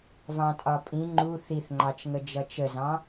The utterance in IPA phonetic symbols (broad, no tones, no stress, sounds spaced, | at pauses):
v ɑ̃ tʼ ɒ pʼ ĩ ŋ͡ǃ u θ i θ ŋ͡ǃ ɑ t͡ʃ ŋ ə d͡ʒ ʌ t͡ʃ ə z ɑ̃